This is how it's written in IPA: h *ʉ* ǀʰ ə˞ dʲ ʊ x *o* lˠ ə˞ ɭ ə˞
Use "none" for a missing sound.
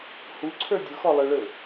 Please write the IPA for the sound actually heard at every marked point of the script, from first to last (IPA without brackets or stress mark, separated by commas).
u, ɔ